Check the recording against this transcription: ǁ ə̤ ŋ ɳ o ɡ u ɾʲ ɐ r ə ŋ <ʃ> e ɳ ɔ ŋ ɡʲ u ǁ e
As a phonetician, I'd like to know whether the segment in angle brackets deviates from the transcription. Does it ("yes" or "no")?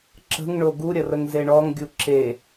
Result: yes